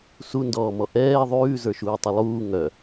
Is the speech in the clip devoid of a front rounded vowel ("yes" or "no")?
no